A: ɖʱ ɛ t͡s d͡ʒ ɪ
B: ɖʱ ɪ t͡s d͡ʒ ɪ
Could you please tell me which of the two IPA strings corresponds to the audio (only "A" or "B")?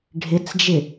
B